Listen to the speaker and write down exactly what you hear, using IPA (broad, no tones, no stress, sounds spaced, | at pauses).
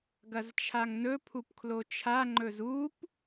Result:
ɡ ɐ z t͡ʃʰ a ŋ n ɵ pʰ u p kʰ l o t͡ʃʰ a ŋ͡ǃ ɵ z u p